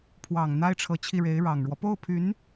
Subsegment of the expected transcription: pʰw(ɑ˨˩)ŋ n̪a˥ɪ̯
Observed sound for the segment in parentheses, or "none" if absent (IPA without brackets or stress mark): ɑ˨˩